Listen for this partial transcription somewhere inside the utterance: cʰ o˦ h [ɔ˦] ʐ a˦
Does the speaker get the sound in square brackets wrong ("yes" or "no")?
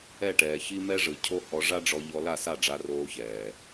yes